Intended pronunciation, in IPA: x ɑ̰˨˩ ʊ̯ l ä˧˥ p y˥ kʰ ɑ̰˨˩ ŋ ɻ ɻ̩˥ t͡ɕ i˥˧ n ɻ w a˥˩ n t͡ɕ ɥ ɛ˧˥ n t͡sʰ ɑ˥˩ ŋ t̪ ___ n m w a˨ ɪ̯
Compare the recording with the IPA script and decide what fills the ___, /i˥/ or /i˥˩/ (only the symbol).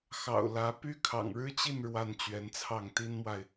i˥